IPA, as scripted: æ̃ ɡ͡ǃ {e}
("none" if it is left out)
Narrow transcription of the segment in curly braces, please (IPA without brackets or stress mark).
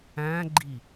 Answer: i